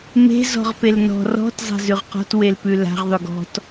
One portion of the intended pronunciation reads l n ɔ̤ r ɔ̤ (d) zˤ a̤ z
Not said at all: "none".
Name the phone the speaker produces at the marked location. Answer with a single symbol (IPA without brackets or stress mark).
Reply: t